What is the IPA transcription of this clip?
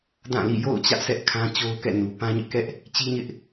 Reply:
d ã˦˨ l ḭ˦˨ j o̰˦˨ ʊ̯ t͡ɕ ä˦ ʔ s ɛ˦ ʔ kʰ ã˦ t͡ɕ o˦ ʊ̯ k ɛ̰˦˨ n u˨ p ã˦ ɲ ɪ˦ ʔ k ɛ˦ ʔ | t͡ɕ i˦ ɲ ɪ˦ ʔ

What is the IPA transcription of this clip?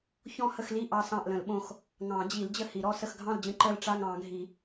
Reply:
ç ɔ̃˦˨ h ə˦˨ x l i˦˨ ʔ ɑ˦˨ s ɑ̃˦˨ ʔ l ə̃˨˩˦ l ɓ õ˦˨ x | ŋ ɑ̃˨˩˦ d͡ʑ i˨˩˦ l d͡ʑ ə˦˨ h i˨˩˦ ɾ ɔ˦˨ s ə˦˨ x ɡʱ ɑ̃˦˨ l d͡ʑ ə̃˦˨ ǃ ə˦˨ l ʈ͡ʂ a˦˨ ŋ ɑ̃˨˩˦ ɡʱ i˨˩˦

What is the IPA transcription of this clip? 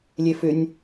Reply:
lʲ e f ʏ nʲ

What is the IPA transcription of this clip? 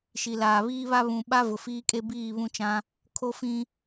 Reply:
ʃ i˨ l aː˨ β iː˦ β a˦ β ũ˨ ɓ a˦ v ʊ˨ f iː˦ kʼ e˦ b iː˦˨ β ũ˦ t͡ʃ ã˦ | kʰ o˦ f ĩ˦

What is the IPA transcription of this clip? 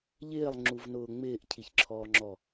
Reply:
ʎ ɪː lˠ ŋ͡ǁ u v n ʊː ŋ͡m ɪː ʔ cʰ i ç ǁʰ ɔː ŋ͡ǁ ɔ

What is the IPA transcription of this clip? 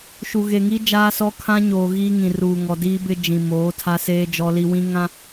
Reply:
ʃ u˨ ɣ e˨ ŋ i˦ d͡ʒ aː˦ s ɔ˦ kʰ ã˦ ɲ oː˨ ɣ iː˦ ŋ ĩ˨ r uː˨ ŋ ɔ˨ d iː˦ b ɪ˦ d͡ʒ ĩ˨ m oː˨˦ tʰ a˦ s eː˦ d͡ʒ ɔ˦ l i˦ w ĩ˦ ŋ ã˦

